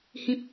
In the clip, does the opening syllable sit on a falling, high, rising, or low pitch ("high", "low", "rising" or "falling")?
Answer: low